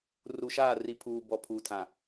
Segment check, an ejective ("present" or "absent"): absent